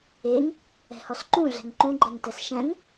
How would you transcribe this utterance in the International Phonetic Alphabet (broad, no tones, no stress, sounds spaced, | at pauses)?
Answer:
e ŋ | ɛ̤ h ɔ s ǃ ũ ɮ ɛ̤ ŋ ǃ ũ ɡ͡ǃ ɛ ŋ t ɛ s ʃ ɛ̃ ŋ